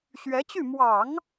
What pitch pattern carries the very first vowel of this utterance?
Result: rising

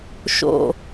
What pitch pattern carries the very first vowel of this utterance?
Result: low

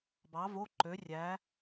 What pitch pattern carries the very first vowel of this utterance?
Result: rising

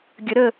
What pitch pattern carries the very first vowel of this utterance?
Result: rising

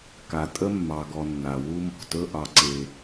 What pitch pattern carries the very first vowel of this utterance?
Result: low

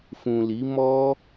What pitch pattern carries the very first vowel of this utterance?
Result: low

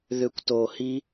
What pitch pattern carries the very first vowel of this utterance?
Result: low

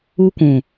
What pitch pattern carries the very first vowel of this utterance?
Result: high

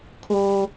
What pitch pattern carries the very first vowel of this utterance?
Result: low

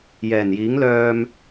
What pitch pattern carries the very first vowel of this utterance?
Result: low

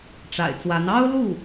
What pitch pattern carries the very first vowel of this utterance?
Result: low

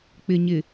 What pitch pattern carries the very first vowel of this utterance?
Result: low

